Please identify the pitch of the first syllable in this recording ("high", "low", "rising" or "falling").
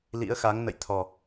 rising